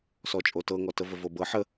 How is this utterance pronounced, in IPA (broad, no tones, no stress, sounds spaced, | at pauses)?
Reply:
s ɔ t͡ʃʼ o t ɤ ŋ ɔ t ə v ə v o b ɤ ħ ə